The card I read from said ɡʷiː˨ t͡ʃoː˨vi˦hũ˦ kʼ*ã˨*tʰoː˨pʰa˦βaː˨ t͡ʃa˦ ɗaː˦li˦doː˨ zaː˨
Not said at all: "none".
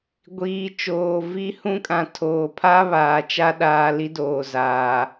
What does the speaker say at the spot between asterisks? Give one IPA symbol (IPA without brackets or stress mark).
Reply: ã˨